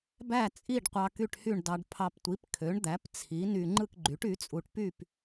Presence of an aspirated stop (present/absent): present